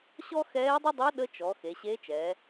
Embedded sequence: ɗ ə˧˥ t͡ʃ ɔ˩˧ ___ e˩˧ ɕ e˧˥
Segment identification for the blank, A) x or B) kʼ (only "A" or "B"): A